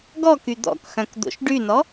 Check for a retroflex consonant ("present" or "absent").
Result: present